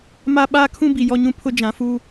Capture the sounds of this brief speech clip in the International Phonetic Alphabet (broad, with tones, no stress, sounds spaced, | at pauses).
m a˦ ɓ aː˦ kʰ ũ˦ b i˨ j ɔ˦ ɲ ũ˦ pʰ ʊ˦ d͡ʒ ã˨˦ f uː˦